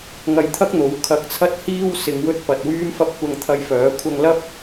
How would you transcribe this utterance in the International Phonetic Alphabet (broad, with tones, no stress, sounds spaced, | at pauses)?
ŋ ɐ˧ j t̪ʰ ɐ˥ k̚ n̪ o˨˥ w kʰ ɐ˨˥ k̚ t͡sʰ ɐ˧ t̚ h iː˧ w s ɪ˨ ŋ w ɵ˧ t̚ p ɐ˧ t̚ w yː˥ m f ɐ˥ p̚ kʷ ɐ˧ ŋ t̪ʰ ɐ˧ j f œː˨˥ kʷʰ ɐ˧ ŋ l ɐ˥ p̚